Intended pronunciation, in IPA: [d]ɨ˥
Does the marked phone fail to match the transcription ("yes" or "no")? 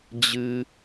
yes